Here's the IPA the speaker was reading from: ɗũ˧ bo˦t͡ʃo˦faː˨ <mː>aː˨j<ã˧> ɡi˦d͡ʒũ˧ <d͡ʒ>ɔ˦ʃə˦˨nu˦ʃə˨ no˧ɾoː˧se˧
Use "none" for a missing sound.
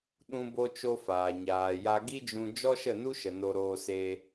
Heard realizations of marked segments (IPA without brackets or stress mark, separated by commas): ɲ, a˧, d͡ʒ